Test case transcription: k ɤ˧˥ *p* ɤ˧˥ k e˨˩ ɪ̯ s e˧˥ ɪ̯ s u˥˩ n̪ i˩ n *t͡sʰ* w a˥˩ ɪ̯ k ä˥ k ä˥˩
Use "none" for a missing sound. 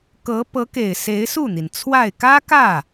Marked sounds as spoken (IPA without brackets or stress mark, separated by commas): p, t͡sʰ